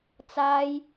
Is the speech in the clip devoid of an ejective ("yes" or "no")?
yes